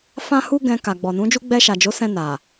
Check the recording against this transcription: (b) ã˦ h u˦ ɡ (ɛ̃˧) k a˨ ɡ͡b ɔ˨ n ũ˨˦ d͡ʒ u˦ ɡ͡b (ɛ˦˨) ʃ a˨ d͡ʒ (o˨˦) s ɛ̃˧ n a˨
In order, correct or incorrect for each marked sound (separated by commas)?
incorrect, correct, incorrect, correct